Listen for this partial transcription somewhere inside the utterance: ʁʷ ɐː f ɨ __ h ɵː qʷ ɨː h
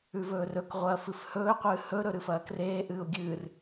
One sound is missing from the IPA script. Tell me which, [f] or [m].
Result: f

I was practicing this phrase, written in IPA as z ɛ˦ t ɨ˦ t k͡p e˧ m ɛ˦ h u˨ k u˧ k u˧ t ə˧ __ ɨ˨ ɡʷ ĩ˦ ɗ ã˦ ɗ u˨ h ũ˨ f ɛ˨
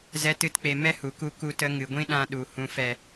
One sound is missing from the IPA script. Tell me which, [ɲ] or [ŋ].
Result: ŋ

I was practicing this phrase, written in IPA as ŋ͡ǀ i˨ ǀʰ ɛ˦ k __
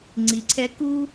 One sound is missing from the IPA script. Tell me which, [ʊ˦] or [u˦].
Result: u˦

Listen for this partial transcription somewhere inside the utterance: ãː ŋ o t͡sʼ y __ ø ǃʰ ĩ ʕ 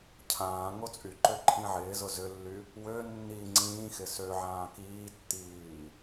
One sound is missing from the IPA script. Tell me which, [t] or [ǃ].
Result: ǃ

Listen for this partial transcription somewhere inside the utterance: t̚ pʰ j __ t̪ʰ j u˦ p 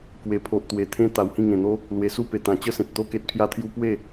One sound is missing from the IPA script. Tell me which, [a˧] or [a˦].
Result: a˦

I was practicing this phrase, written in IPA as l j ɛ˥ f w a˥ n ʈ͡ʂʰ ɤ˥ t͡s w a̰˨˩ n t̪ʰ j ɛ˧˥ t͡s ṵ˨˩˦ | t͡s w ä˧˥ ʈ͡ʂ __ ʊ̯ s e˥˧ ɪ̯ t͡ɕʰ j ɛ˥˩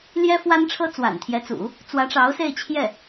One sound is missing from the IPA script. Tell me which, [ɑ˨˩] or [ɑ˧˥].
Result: ɑ˧˥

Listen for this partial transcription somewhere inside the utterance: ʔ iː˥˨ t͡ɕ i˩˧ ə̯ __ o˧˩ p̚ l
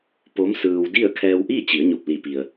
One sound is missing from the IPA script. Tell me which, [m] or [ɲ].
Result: ɲ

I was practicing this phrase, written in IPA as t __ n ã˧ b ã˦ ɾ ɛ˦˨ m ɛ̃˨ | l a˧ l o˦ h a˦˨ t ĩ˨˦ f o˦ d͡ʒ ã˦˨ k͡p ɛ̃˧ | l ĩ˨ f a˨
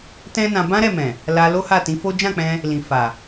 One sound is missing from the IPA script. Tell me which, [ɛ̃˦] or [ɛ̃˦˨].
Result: ɛ̃˦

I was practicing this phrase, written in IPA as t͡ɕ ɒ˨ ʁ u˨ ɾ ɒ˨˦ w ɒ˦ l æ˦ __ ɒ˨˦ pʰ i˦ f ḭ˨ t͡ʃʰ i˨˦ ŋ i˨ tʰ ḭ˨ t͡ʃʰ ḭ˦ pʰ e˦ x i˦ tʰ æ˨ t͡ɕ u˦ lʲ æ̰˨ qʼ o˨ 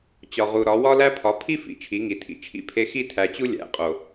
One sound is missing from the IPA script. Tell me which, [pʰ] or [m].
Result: pʰ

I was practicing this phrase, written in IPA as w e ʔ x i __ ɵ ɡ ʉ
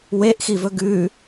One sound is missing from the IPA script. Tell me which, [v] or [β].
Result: v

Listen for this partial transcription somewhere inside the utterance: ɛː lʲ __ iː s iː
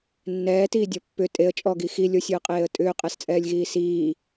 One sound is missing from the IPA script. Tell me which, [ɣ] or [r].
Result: ɣ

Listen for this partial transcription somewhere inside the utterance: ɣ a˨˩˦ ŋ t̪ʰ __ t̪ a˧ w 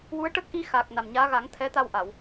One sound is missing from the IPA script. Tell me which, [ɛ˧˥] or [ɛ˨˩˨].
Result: ɛ˧˥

